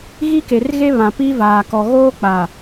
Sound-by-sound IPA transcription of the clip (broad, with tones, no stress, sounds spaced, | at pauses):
ɣ i˦ k e˨ r ɣ e˦ β ã˨ p i˦ v aː˨ k ɔ˨ ɣ oː˦ k͡p a˨